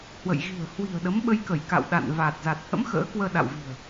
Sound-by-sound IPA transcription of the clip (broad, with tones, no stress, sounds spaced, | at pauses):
h w ə̰˧˨ j ɣ i̤˨˩ ə̯ h w i̤˨˩ ə̯ ɗ ə˨˦ m ɓ ə˧ j k ə˧˩ j k a̰˧˨ w ɗ a̰˧˨ n v a˨˩ t̚ z a˨˩ t̚ h ə̰˧˥ m x ə̰ː˧˥ k w əː˧ ɗ a̰˧˨ w v i̤˨˩ ə̯